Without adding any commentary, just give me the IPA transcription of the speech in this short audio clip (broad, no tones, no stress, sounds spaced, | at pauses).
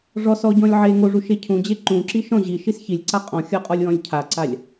ʐ ɔ s ɔ ɟ ɔ̃ lʲ ʕ e ŋ o ʐ u ʃ e cʰ ũ d͡ʑ e ǃ ũ ǁ i ʃ ɔ̃ ʑ i ʃ i s ç i lʲ ǀ a qʼ ɔ̃ xʲ ɔ qʼ ɔ lʲ w ɔ̃ lʲ cʰ a ǀ a lʲ